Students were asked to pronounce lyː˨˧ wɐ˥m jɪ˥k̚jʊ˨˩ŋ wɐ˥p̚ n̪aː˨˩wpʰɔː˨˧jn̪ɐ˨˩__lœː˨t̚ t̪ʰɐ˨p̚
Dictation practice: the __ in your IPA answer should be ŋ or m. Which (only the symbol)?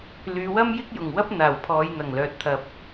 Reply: ŋ